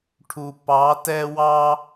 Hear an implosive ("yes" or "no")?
no